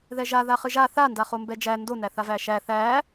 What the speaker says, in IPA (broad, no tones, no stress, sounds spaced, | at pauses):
ð ɛ ʒ a ð a χ ɨ ʒ a θ a n d a χ o m b ɛ d͡ʒ æ n d o n æ θ a v æ ʃ æ θ æ